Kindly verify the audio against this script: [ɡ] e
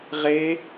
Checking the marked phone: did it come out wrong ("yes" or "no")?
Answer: yes